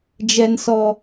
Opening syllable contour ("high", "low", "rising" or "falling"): high